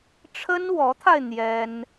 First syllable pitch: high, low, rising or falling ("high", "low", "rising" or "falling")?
high